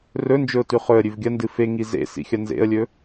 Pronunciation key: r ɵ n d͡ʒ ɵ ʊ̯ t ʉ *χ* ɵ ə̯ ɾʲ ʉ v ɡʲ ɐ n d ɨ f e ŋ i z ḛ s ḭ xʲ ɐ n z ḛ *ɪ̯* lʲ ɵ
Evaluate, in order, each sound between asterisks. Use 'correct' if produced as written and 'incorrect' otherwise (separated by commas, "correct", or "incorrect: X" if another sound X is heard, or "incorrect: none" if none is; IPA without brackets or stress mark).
correct, incorrect: ə̯